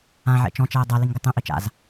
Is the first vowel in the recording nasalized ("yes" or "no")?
yes